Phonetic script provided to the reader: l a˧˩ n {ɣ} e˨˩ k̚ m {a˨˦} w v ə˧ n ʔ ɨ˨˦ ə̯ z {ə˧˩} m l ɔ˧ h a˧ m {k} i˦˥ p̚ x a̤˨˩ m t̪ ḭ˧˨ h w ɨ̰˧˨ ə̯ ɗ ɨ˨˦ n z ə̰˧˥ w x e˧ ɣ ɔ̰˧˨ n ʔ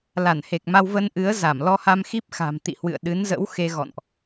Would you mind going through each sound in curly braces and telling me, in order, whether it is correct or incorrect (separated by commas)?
incorrect, incorrect, incorrect, incorrect